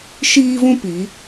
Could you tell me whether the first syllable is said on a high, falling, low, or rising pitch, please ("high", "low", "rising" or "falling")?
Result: high